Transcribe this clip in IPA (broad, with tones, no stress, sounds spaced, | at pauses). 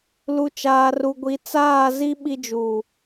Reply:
l u˨ t͡ʃ aː˨ r u˨ ɡʷ i˨ t͡s aː˦˨ z i˦ ɓ i˦ d͡ʒ u˦˨